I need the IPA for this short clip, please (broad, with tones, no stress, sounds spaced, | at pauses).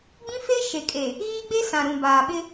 ɡ͡b ĩ˦ f e˦ ʃ e˨ kʼ e˨ | ɣ iː˦ ɡ͡b e˦ s ã˨ ɾ ũ˨ b aː˨ ɓ ɪ˦